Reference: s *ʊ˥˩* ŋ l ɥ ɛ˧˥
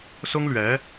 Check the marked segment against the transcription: incorrect: ʊ˥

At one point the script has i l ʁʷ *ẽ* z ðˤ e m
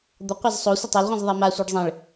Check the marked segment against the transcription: incorrect: ĩ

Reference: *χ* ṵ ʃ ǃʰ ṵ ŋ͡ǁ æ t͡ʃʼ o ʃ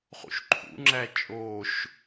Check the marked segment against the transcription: correct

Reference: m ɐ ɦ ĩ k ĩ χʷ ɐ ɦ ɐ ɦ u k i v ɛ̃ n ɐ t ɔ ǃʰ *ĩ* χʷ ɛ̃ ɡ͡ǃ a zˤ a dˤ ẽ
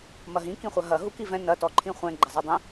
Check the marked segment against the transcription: correct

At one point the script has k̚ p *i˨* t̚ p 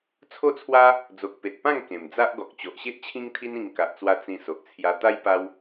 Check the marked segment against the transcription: incorrect: e˨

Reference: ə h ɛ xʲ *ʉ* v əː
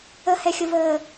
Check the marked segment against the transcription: incorrect: ə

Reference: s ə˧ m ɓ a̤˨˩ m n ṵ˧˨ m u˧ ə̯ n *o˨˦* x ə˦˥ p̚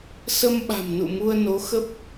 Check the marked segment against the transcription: correct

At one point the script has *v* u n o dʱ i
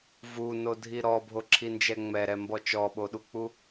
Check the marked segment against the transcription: correct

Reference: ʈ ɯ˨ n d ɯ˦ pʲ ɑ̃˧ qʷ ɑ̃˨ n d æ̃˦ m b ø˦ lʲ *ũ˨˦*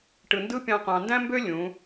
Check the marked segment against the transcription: correct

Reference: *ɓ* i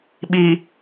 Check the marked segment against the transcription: correct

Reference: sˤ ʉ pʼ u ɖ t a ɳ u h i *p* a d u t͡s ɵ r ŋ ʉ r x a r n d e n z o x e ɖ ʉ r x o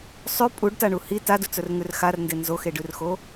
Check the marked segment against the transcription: incorrect: t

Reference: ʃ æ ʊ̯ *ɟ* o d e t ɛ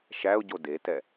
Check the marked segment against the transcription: correct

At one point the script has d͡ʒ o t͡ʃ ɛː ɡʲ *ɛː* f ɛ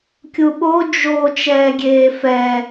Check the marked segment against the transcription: incorrect: eː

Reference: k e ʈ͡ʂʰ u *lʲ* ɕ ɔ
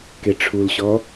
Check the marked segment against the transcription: incorrect: l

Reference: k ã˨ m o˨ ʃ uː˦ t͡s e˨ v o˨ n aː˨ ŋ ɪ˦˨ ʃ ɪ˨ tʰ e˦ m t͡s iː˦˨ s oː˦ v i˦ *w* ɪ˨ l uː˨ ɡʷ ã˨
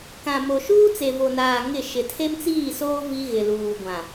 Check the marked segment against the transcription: incorrect: ɣ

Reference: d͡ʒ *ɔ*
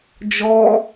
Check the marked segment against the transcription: correct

